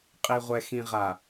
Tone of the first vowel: low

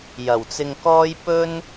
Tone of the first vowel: low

